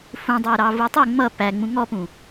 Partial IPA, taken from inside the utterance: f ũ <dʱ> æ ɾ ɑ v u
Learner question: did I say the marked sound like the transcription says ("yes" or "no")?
no